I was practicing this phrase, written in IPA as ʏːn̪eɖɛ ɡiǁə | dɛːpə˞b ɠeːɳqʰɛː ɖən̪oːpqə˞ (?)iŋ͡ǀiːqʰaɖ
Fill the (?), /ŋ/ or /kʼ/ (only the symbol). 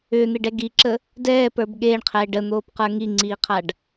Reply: ŋ